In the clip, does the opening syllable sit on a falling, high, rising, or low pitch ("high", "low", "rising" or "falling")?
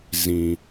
low